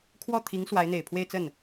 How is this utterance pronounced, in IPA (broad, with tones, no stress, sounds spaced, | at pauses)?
kʰ w ɔ˥˩ t̪ʰ i˧˥ ŋ s w a˧˥ ɪ̯ n̪ e˨˩ ɪ̯ pʰ w e˥˧ ɪ̯ t͡s ə˥˩ n